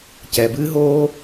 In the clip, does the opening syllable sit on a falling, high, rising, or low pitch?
low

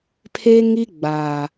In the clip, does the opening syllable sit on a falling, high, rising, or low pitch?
high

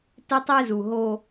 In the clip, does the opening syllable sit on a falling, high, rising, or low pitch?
high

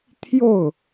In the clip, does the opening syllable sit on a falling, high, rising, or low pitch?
falling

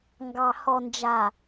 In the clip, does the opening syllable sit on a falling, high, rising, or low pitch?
low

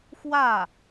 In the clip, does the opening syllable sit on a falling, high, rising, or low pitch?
falling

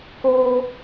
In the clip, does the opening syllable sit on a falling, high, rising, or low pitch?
high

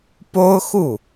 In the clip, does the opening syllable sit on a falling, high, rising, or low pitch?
high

